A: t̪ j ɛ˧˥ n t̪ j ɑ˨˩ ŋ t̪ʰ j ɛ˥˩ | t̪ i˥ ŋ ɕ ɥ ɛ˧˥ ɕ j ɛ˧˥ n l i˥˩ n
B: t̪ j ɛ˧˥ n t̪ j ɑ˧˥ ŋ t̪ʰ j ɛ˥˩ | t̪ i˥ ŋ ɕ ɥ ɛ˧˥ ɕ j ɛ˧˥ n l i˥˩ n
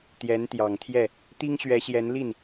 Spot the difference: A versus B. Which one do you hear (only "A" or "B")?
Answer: A